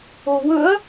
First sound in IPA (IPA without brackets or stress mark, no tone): o